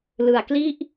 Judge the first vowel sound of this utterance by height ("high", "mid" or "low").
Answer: high